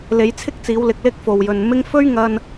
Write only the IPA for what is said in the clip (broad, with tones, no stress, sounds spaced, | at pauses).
l e˨˧ j t͡sʰ ɪ˥ k̚ t͡s iː˨˧ w l ɪ˧ k̚ l ɪ˥ k̚ f o˨ w j ɵ˨ n m ɪ˥ ŋ f ɵ˥ ɥ ŋ ɐ˧ n